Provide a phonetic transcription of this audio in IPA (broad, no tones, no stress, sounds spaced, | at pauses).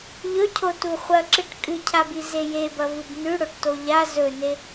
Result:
ʎ ɵ cʰ o t u χʷ ɐ ǁ ɨ ʈ kʼ ɨ cʰ a b i z e j e b ɐ v ɨ b n ʉ ɽ o ʈ t o ʎ a z ɵ n e